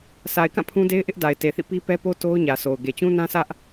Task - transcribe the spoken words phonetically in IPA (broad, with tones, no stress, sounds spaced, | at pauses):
sʰ a˨ ɪ̯ k ã˦˨ pʰ ũ˦ d e˦ ɪ̯ ʔ ɪ˦ ʔ d a˨ ɪ̯ t e˨ θ ḭ˦˨ p i˦ p ɛ˦ p o˦ t o˦ ʊ̯ ɲ ä˨ sʰ o˨ ʊ̯ ɡ e˨ t͡ɕ ũ˦ n ã˦ sʰ ä˦ ʔ